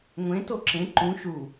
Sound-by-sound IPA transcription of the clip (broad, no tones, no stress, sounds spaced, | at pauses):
ŋʷ ẽ t o ǁ ẽ ǃ ũ ʃ u